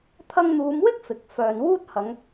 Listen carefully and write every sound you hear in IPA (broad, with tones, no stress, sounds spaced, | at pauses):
t̪ʰ ɐ˧ ŋ n̪ uː˨˧ m w ɪ˥ k̚ f ɪ˨ k̚ f œː˨ n w uː˥ t̚ h ɐ˨˧ ŋ